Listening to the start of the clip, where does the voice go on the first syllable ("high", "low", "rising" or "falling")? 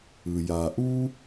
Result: low